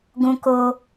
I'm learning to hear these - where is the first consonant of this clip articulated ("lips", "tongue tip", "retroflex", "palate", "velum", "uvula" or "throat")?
velum